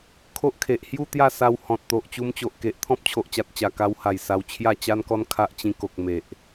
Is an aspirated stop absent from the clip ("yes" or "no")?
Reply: no